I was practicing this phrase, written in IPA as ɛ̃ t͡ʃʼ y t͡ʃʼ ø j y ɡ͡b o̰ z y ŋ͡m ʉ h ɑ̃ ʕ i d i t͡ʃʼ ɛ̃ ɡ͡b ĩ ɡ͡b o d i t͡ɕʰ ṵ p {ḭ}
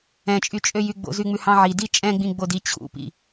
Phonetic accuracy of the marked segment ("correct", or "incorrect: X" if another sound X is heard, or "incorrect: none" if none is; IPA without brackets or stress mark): correct